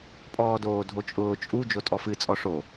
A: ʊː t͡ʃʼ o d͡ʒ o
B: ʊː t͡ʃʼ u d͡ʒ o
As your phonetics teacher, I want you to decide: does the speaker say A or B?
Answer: B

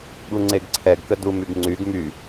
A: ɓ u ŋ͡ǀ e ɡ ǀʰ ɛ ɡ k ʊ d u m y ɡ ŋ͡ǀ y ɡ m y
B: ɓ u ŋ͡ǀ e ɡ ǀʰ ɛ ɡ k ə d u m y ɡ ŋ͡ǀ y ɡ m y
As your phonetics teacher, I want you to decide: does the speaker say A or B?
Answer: B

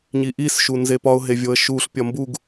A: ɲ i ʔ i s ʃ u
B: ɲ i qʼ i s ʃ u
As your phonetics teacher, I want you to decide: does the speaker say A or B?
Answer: A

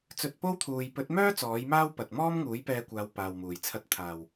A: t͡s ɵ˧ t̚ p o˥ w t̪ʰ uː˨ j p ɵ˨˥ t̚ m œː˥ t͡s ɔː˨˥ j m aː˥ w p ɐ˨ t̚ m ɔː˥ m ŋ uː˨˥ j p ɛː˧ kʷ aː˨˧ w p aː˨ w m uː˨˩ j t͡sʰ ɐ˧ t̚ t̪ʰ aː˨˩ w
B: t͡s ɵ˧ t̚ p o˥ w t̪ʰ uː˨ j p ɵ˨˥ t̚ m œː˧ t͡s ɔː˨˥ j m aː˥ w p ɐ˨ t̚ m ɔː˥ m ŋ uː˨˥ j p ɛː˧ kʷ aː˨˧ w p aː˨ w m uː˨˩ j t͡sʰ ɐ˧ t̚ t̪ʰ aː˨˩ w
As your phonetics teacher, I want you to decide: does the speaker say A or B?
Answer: A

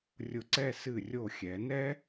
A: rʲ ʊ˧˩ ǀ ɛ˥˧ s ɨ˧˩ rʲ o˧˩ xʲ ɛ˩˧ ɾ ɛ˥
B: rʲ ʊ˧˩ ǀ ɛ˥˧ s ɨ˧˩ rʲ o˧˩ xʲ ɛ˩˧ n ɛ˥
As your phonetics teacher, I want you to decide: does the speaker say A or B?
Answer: B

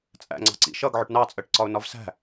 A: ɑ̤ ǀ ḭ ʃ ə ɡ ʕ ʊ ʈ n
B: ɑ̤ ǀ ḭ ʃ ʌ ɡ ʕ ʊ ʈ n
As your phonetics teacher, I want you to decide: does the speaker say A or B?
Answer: B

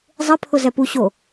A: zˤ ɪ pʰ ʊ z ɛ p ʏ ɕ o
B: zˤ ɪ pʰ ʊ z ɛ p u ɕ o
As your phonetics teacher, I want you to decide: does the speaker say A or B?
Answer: B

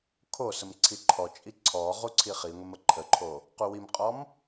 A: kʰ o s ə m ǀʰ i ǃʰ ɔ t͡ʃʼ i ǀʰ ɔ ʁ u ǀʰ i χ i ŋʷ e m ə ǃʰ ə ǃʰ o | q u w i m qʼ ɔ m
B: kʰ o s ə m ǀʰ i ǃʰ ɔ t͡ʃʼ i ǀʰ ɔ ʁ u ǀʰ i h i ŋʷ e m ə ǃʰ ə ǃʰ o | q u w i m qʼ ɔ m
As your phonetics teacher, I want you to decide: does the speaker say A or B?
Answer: A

